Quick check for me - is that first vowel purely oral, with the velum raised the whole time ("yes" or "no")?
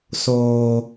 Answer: yes